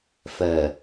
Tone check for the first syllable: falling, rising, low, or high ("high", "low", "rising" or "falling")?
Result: low